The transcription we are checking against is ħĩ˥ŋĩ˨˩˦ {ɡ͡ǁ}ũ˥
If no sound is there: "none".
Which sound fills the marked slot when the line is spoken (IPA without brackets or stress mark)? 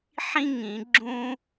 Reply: ɡ͡ǁ